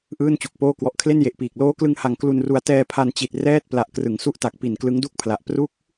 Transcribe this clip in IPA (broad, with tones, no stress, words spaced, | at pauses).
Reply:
ʔɯː˥˩nt͡ɕu˨˩k̚poː˥˩ kwɔ˨˩ʔkʰle˥˩nje˨˩ʔpiː˨˩k̚ loː˦˥klɯ˧ŋha˨˩ŋ klu˧nru˧a̯ tɛː˧pʰa˧nt͡ɕi˨˩t̚ rɛː˥˩t̚ pla˨˩ʔkrɯ˩˦ŋsu˦˥ʔta˨˩k̚ pi˨˩nklɯ˦˥ŋdu˥˩k̚pʰla˨˩ʔ pru˦˥k̚